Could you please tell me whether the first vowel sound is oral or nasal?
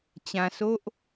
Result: nasal